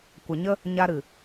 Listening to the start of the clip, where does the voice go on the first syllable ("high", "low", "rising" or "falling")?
low